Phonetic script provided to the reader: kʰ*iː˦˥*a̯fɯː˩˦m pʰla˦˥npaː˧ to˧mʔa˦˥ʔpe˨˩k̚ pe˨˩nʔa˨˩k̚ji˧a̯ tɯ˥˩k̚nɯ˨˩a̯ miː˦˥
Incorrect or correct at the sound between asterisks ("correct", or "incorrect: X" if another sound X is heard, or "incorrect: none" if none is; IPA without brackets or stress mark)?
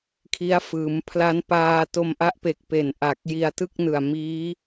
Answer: incorrect: i˦˥